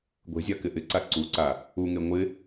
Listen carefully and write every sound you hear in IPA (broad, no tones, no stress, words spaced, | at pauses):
ɡʷe̤zʲa kɪʔɪǀa ǀuǀa | uŋe ŋʷɪ